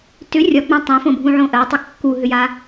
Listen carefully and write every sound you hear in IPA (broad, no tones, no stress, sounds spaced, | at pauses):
t ʏ rʲ ɒ ɡ͡b ã tˤ ɛ̃ f õ bʱ ũ ʕ õ ʔ ɜ tˤ ʏ kː u ɦ ʏ j a